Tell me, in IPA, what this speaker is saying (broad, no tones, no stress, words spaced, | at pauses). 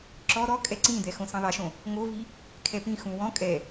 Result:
ǁɔ ɾɔkʼɛ ǀĩd̪ɛ xõsĩðˤeʃõ | ŋovi | kʰɛpĩxũ wɔ̃ kʼɛ